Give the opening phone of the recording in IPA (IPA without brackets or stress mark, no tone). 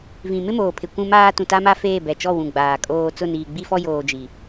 v